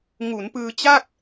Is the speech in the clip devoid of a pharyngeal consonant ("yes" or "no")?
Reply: yes